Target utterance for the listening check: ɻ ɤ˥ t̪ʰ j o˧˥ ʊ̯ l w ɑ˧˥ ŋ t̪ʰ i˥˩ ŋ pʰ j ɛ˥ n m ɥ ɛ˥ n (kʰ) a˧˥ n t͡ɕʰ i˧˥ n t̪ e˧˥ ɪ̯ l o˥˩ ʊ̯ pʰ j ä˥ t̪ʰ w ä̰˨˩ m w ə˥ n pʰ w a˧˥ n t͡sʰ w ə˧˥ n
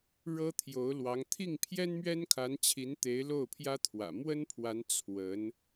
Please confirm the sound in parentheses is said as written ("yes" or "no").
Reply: yes